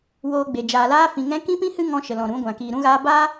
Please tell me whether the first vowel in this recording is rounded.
yes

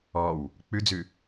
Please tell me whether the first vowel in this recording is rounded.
yes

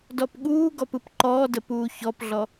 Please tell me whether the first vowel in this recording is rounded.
yes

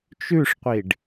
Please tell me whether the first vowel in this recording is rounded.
yes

